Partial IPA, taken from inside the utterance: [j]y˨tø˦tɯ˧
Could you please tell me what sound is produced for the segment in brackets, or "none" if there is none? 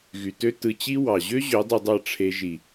ɣ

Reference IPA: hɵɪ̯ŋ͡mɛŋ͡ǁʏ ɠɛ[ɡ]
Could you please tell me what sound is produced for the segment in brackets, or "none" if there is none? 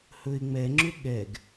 ɡ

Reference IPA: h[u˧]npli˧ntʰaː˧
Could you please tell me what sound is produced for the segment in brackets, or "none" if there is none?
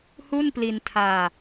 u˥˩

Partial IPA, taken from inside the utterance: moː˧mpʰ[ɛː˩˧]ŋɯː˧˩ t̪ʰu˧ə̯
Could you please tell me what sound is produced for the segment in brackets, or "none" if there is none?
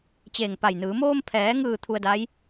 ɛː˩˧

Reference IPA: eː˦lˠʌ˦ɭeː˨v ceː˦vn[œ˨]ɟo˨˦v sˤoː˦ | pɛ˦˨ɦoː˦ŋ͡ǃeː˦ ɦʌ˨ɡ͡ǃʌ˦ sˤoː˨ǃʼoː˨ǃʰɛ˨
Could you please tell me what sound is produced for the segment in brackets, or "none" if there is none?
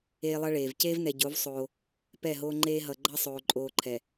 ɛ˨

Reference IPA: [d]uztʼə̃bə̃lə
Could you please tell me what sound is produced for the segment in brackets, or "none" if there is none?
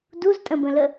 d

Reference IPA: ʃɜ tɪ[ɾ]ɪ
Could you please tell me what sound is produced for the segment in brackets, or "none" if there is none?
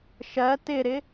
ɾ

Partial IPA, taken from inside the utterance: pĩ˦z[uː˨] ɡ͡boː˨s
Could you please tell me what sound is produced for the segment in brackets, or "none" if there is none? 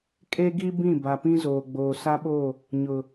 oː˨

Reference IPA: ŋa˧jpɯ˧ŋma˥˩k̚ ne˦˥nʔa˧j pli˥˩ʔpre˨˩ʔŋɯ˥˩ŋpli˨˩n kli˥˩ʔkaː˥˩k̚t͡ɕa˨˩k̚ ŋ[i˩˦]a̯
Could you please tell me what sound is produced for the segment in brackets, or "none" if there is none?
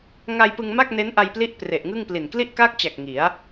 i˩˦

